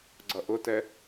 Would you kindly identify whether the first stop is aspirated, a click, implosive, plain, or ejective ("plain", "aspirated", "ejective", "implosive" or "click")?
click